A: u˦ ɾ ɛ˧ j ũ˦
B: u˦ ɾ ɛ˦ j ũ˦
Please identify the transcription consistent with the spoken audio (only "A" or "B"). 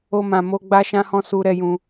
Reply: B